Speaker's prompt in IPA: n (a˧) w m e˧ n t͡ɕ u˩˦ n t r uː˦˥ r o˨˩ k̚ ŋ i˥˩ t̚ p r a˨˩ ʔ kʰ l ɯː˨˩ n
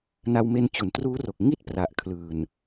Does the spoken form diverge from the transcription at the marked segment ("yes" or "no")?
no